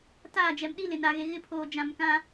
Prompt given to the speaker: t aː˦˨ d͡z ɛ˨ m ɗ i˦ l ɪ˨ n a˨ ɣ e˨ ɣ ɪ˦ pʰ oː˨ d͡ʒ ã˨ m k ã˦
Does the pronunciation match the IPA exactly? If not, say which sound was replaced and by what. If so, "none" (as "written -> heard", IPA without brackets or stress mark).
d͡z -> d͡ʒ